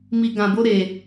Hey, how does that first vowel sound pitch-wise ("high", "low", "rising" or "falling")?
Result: low